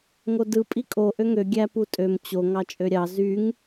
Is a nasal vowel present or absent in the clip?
absent